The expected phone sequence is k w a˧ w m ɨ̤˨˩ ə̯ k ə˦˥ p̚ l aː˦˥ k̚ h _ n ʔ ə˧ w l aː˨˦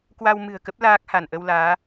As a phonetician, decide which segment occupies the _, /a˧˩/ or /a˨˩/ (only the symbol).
a˧˩